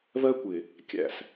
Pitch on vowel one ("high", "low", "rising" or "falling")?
high